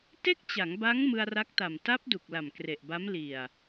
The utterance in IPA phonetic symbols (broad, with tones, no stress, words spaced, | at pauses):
te˥˩k̚t͡ɕa˩˦ŋba˦˥ŋ mɯ˧a̯ra˦˥k̚ta˨˩m ta˦˥p̚ du˨˩k̚la˨˩mkre˨˩ʔba˦˥m li˨˩a̯